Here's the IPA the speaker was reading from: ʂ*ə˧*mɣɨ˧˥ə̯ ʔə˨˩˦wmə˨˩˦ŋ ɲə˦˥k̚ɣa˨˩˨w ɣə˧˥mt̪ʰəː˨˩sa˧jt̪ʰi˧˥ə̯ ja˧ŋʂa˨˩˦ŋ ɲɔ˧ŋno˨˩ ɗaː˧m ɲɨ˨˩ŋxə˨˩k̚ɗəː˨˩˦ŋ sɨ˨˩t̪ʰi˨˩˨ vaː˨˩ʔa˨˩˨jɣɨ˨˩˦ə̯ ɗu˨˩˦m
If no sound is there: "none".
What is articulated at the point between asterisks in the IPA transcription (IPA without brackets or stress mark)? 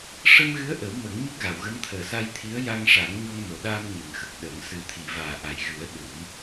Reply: ə˧